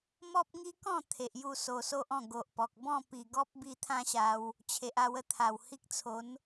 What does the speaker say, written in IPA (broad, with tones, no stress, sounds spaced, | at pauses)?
m ɔ˦ p̚ ŋ i˦ k ɔ̃˥˧ t̪ʰ e˨ ʔ j u˥˧ s o˧ s o˦ ʔ ɔ̃˥˧ ɡ o˨ ʔ p ɔ˨ k̚ b ɔ̃˥˧ p i˨˩ ɡ ɔ˦ p̚ b i˧ t̪ʰ ã˦ ɕ a˧ w | t͡ɕʰ e˨ ʔ a˧ w ə˧ t̪ʰ a˨˩ w h i˦ k̚ t͡sʰ o˨˦ n